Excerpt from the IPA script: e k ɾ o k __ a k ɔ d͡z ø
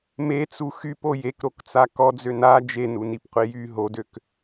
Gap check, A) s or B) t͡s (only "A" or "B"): B